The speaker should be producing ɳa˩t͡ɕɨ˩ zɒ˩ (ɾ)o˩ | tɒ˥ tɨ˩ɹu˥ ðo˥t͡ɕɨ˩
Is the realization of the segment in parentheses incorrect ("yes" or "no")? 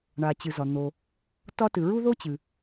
yes